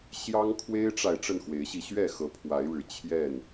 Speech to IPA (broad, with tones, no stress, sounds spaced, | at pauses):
ɕ j ɑ˦ ŋ kʰ w e˦ ɪ̯ ʈ͡ʂ a˨ ɪ̯ ʈ͡ʂ ə˥˨ n x w e˨˦ ɪ̯ ɕ i˧ ɕ ɥ ɛ˥˨ x ɤ˨˦ pʰ w a˨˦ ɪ̯ ɻ ɻ̩˨˩ t͡ɕʰ j ɛ˥˨ n